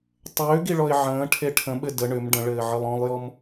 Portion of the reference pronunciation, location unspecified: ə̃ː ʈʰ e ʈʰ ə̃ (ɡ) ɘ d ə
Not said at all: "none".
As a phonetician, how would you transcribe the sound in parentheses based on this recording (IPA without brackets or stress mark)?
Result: ɓ